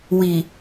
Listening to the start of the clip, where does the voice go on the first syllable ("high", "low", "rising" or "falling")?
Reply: low